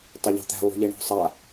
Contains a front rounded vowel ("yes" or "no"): no